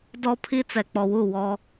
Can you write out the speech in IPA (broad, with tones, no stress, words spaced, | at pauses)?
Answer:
dɔ˦pʰi˦ t͡sɛ˨k͡pɔ˨wu˦˨ wɔ˦